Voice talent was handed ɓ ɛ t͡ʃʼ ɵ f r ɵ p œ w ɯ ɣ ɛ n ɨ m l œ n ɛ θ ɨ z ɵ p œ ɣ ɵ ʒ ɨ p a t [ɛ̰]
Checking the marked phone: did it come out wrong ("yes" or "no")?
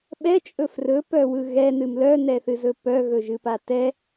yes